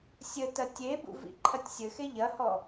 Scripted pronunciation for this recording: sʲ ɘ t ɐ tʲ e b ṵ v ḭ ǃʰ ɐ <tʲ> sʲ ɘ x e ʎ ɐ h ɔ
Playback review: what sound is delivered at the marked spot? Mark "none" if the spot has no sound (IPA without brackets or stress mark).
tʲ